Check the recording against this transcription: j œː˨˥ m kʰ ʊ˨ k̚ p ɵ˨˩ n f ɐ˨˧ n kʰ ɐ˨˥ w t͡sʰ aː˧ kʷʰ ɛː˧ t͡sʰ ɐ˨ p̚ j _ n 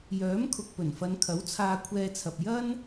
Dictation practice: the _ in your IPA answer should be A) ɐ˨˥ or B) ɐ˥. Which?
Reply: B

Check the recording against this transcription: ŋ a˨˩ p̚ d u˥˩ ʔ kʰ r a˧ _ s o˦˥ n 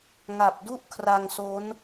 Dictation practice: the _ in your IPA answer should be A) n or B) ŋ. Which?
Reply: B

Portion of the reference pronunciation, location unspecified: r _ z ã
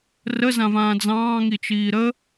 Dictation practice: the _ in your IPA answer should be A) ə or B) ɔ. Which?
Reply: A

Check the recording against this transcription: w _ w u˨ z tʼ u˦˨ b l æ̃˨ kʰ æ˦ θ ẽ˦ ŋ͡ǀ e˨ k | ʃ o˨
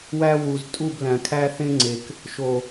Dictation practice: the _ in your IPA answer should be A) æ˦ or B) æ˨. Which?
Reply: A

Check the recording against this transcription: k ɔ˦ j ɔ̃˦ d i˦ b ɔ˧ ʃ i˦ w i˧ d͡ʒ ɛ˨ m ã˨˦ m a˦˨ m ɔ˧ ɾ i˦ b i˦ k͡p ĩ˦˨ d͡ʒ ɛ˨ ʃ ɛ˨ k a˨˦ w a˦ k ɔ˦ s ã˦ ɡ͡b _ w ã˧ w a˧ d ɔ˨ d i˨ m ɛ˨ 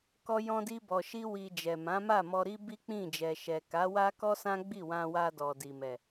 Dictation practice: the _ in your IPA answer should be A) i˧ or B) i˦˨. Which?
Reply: B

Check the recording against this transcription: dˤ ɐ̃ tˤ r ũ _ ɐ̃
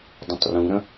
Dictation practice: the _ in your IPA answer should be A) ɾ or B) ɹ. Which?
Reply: A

